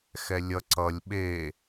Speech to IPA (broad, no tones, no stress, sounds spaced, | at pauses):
x ɛ lʲ ʌ ǀ ʌ lʲ ɓ e